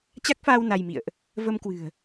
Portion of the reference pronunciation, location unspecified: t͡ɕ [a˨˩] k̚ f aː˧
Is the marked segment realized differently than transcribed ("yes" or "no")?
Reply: yes